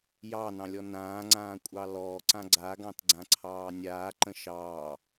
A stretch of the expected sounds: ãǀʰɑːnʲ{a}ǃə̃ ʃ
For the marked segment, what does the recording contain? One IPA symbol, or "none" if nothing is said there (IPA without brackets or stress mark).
aː